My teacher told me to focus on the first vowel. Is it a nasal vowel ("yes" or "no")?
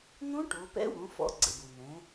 yes